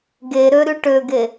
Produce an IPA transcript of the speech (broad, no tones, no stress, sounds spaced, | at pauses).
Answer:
ɡ e ɾ ø ɾ y ʈ ø ɡ e